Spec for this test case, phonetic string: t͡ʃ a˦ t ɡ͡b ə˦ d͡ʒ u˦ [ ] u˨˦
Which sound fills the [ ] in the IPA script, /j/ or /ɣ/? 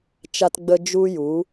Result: j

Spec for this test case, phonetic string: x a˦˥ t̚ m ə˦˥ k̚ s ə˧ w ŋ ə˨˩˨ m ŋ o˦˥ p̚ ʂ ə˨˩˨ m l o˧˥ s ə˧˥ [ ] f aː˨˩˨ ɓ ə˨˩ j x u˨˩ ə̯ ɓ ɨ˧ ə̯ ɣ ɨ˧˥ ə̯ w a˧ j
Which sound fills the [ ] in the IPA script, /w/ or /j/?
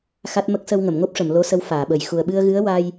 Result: w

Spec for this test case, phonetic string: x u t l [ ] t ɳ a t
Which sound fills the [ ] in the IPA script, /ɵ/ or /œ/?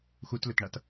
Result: ɵ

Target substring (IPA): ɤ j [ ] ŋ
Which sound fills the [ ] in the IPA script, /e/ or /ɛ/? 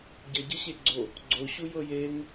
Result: e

